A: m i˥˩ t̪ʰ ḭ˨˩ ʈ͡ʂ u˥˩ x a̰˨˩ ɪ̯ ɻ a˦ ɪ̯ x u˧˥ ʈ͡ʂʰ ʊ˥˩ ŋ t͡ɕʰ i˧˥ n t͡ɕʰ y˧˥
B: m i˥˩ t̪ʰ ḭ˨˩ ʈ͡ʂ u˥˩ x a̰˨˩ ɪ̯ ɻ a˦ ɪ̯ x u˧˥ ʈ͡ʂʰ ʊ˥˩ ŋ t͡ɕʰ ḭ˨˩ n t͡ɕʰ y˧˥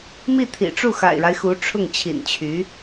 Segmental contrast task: B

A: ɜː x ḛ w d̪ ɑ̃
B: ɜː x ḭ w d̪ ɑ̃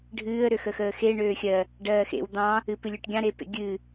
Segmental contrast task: A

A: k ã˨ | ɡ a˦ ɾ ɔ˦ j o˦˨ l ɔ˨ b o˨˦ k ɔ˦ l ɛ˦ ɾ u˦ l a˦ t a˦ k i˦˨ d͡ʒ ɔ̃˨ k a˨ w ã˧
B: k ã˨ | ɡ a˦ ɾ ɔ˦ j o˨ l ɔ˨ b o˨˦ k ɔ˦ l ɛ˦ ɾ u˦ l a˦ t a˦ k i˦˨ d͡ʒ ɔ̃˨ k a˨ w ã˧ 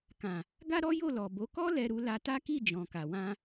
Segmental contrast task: A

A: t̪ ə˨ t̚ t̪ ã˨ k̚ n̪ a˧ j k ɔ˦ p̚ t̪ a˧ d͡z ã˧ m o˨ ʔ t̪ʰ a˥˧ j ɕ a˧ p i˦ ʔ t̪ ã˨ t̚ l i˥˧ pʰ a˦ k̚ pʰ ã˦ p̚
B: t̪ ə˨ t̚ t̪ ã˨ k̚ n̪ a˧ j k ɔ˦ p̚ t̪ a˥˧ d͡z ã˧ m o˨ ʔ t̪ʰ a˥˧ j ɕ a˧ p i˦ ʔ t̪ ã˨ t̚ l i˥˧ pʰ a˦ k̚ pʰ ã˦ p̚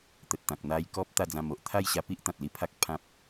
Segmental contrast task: B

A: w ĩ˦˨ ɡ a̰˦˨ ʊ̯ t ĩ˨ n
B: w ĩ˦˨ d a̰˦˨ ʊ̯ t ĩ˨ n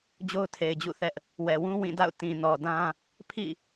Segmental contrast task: B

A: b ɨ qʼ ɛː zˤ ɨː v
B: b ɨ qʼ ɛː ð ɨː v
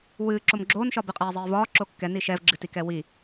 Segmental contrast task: A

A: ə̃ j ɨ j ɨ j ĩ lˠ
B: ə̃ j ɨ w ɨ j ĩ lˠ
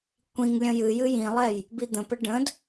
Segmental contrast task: A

